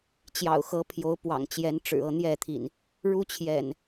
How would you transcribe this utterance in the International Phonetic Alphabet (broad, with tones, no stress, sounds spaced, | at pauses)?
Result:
t͡ɕ j ɑ̰˨˩ ʊ̯ x ɤ˨˦ pʰ j o˨˦ ʊ̯ p w ɑ̰˨˩ ŋ t͡ɕ j ɛ˨˦ n ʈ͡ʂ ɻ̩˨˩ ɤ˥˨ n̪ j ɛ˥˨ t̪ʰ ḭ˨˩ n | ɻ u˦ t͡ɕʰ j ɛ̰˨˩ n